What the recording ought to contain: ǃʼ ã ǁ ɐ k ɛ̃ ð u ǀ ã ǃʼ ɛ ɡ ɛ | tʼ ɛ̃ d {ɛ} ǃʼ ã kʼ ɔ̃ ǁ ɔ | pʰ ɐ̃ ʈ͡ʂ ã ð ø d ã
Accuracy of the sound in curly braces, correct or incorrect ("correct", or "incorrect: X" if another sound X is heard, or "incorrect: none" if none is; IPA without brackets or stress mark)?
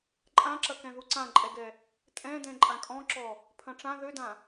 incorrect: ɛ̃